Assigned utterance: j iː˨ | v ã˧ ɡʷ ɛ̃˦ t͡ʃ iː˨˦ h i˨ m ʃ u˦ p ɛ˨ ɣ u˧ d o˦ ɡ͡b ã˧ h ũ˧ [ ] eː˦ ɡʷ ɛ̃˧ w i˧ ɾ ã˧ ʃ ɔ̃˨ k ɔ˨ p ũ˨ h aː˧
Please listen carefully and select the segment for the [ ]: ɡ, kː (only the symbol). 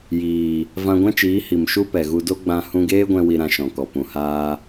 ɡ